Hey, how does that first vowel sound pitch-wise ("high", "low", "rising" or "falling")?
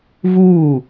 falling